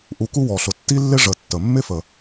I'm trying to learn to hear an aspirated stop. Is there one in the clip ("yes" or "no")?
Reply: no